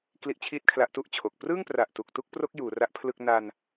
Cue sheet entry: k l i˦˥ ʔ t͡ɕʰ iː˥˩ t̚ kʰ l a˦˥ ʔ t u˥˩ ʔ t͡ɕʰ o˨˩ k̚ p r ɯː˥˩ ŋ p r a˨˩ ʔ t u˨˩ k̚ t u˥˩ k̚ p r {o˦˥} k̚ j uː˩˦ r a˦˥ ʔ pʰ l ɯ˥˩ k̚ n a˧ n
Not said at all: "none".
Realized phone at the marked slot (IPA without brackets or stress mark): o˦˥